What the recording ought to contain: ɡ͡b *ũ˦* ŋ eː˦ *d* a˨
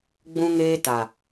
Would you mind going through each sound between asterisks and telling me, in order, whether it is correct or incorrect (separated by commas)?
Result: correct, incorrect